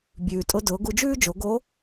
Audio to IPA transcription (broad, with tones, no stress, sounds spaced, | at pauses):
bʲ ʉː˩ tʼ ʊ˧ d ʊː˩˧ ɡ u˧ d͡ʒ ʉː˥ d͡ʒ o˩˧ ɡ o˧˥